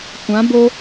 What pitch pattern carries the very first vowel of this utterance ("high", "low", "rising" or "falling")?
rising